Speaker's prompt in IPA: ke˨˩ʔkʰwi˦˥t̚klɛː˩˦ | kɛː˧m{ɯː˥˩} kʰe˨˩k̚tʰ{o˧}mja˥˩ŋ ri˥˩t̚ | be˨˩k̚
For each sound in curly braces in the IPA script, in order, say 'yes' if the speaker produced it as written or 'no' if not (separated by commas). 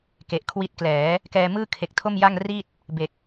yes, no